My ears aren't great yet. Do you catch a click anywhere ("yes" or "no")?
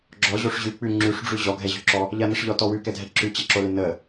yes